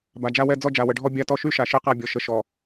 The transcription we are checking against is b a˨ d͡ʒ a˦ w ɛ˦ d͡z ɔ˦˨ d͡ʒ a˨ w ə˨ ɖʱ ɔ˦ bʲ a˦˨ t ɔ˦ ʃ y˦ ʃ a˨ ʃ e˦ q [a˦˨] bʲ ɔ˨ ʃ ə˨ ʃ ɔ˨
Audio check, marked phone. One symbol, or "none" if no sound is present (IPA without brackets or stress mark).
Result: a˦˨